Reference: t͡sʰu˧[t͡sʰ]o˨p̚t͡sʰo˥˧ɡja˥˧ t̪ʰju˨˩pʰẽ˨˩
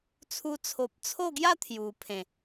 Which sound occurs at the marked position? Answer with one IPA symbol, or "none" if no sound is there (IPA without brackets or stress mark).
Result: t͡sʰ